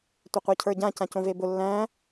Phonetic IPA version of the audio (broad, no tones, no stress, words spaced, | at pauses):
tʷeqʷacʰə˞ɟã cãcõvebʊ lːæ̃